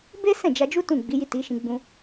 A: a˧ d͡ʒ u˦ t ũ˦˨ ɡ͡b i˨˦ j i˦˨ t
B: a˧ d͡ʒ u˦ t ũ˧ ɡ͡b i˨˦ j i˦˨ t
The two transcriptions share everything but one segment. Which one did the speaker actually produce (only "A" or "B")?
A